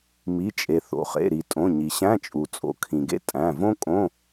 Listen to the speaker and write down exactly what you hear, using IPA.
m i˩˧˩ t͡ʃʼ e˩ θ o̰˩ χ ḛ˩˧˩ ɾ i˩ tʼ õ˩˧˩ ɲ i˩ ɕ æ̃˧˥˧ t͡ʃʼ u˩ t͡sʼ o̰˩ kʰ ĩ˩ ɡ ḛ˥ tʼ æ̃˩˧˩ v õ˥ kʼ õ˧˥˧

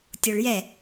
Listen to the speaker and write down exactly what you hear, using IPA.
tʲ o ɭ j ɛ

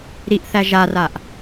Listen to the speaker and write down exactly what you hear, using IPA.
ɾ i ʔ θ æ ʒ a r a ʔ

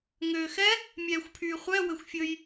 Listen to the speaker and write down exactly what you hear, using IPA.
ŋ øː x ɛ | mʲ ɛː xʷ pʰ yː χʷ ɛ w ɘ xʷ fʲ ɵ j

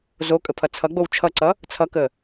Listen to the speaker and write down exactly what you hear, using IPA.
z o kʼ ə pʰ ʌ t͡sʰ ʌ ɡ͡b o w t͡ʃʰ ʌ ǀ ʌ | t͡sʰ ʌ k ə

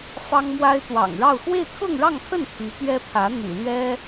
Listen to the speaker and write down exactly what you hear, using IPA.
f ɑ˥ ŋ m w a˥ ɪ̯ t̪ w ɑ̰˨˩ ŋ ɻ ɑ˥˧ ʊ̯ x w e˥˧ ɪ̯ kʰ ɤ˥˧ ŋ ɻ ɑ˥˧ ŋ kʰ ə˥˩ n pʰ y˧˥ t̪ ɥ ɛ˥ pʰ ä˧˥ n̪ y̰˨˩ l ɥ ɛ˥

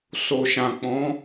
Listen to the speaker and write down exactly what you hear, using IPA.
s o˨ ʃ ã˨ k͡p ɔ̃˨˦

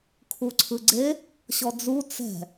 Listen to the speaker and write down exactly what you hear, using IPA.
kʰ u ǀʰ ɯ ɡ͡ǀ e | ɕ ɔ d͡z u t͡s ɛ̤

